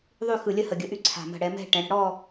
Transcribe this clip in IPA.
ðˤ y˥˧ x ɯ˧˩ lʲ ə˥˧ h ə˧˩ ɡʲ ə˧˩ ʔ y˥˧ ǀʰ a̤˧˩ m ə̤˧˩ ɽ ɛ˩˧ m ɛ̤˥˧ ʈ ɛ̃˩˧ ɽ ə̤˧ ɽ ɔ˥˧

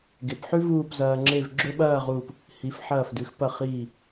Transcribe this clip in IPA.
ɡ e˩˧ p ħ ʉ˥ v uː˥˧ p z ɐː˧ ŋ͡ǁ e˥˧ v ɡ͡ǁ ɵ˥ ɓ ɐː˥˧ ʁ uː˧˩ p | h i˩˧ f ħ ɐː˧˩ f d ʉ˩˧ x p ɐ˧˩ χ iː˧˩

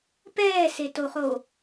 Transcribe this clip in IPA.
p ɛː s e t o u̯ χ o

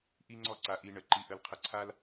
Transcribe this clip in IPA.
ʔ i˥ ŋ͡ǀ ɔ˥ ǀ a˧ ʔ i˧ ɳ ə˩ ǃ i˧ ʔ ə˧ l qʰ ə˧ ǀʰ a˥ l

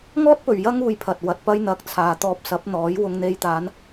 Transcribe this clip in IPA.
ŋ ɔː˥ t̚ p ɵ˨ ɥ j ɐ˥ ŋ uː˨˧ j pʰ ɐ˨ t̚ w ɐ˨ t̚ p ɐ˥ j n̪ ɐ˧ k̚ t͡sʰ aː˨ t̪ ɔː˧ p̚ s ɐ˨˥ p̚ n̪ ɔː˨˥ j w ʊ˧ ŋ n̪ e˧ j t̪ aː˨˧ n

